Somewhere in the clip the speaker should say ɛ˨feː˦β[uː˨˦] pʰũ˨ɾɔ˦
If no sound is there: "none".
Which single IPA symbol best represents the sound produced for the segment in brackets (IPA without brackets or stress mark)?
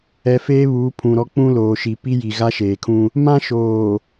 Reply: uː˨˦